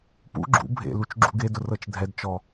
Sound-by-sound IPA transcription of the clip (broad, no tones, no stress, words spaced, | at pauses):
pṵ ɡ͡ǁṵ bʱḛlut͡ʃ ɡ͡ǁṵɡedʊ rɤt͡ʃdʱɛdt͡ʃɔ